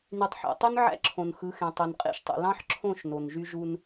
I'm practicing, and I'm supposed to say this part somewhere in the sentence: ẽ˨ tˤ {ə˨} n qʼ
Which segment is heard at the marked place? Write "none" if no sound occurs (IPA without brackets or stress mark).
ø˨